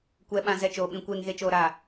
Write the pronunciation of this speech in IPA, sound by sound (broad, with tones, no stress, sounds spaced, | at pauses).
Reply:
kʷ ɛ˨ ɓ ã˨ z ɛ˨ t͡ʃ oː˨ ɓ ĩ˨ kʷ eː˨ ŋ ɣ e˨ t͡ʃ oː˨ ɾ a˨